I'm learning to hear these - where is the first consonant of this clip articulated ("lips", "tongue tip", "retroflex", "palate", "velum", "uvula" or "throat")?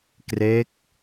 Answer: velum